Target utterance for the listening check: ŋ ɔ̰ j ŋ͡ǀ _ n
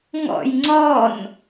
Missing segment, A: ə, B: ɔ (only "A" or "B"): B